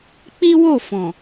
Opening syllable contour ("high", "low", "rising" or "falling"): high